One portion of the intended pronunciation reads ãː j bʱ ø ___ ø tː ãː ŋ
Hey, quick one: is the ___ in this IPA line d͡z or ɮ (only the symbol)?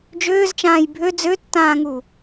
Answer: d͡z